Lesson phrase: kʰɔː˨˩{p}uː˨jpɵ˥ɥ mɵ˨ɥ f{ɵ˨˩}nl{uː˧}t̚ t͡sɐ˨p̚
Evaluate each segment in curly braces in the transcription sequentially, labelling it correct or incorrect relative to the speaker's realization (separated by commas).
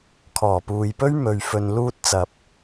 correct, incorrect, correct